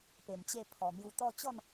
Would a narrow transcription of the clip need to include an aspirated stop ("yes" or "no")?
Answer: yes